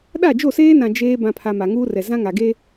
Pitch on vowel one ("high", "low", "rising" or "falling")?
falling